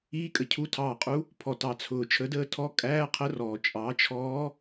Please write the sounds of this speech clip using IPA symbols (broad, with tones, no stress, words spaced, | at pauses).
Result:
iː˧˥˧ kʼə˩cʰu˧˥tʰɑː˧˩qʼu˧˥ | pʰɔ˩tɑ˩t͡sʰʊː˩ t͡ʃʰə˩˥dəː˧˥tʰɔ˧˥˧ kʼæː˧˥˧qʰə˧˥rɔː˩ t͡ʃʼɑ˩˥t͡ʃʰɔː˧˥